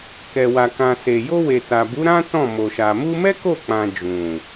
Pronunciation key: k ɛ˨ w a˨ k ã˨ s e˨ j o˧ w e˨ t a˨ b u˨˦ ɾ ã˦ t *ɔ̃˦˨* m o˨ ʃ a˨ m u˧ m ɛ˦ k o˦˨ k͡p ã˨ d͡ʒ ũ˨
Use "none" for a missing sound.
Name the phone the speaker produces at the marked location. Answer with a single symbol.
ɔ̃˦˨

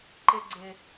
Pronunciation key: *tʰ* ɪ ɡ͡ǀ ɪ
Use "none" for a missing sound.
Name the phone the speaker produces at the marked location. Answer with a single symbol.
ǃ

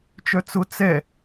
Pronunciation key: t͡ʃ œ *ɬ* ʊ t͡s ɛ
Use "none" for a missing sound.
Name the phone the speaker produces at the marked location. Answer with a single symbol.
t͡s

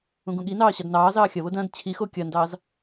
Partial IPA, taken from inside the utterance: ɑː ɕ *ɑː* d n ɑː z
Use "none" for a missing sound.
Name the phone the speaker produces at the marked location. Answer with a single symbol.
ɑ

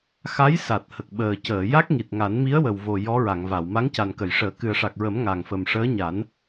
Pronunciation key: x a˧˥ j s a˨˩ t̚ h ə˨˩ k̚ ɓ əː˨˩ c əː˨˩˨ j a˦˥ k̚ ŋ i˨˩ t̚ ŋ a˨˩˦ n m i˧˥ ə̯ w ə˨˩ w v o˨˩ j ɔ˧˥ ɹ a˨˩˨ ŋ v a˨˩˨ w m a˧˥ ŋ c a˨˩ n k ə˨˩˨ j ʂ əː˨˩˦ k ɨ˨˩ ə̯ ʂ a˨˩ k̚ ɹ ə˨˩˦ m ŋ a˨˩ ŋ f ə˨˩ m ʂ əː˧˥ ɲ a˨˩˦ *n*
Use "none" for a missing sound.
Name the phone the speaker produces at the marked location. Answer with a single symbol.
n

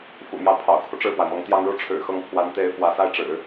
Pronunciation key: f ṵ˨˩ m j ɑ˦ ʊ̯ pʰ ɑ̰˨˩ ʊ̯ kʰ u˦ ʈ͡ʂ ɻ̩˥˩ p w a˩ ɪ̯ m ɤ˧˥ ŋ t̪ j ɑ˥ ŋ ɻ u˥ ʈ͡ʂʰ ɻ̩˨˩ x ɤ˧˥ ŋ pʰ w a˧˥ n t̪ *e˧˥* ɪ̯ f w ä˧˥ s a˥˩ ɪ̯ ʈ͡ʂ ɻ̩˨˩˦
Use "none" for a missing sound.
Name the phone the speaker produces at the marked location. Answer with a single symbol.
e˧˥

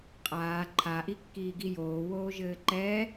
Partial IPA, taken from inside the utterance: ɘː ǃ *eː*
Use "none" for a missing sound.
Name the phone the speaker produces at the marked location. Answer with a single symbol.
ɛː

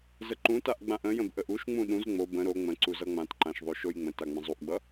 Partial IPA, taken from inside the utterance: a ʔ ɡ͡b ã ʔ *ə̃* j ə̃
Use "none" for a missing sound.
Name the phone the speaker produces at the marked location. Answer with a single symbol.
ə̃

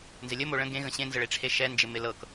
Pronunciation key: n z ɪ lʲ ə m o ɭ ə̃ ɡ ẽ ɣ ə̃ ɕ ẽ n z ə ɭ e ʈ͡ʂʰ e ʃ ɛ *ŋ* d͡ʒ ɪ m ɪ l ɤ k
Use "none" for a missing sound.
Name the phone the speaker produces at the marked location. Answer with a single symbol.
n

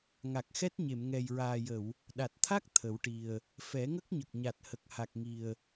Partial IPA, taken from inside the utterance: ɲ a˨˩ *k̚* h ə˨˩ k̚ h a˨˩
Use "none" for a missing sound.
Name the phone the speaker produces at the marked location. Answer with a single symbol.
t̚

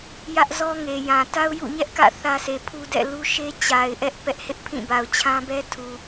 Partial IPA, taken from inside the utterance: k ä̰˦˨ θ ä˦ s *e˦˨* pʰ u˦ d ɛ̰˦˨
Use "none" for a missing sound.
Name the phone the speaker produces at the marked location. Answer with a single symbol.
e˨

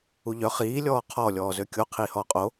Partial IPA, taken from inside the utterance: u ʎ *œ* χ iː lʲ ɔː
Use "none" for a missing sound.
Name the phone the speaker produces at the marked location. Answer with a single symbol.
œ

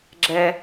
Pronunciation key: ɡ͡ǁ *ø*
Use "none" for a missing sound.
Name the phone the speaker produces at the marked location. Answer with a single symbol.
ɛ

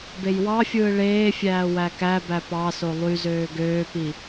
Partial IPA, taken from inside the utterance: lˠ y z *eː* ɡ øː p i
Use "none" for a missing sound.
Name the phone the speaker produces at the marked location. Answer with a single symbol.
øː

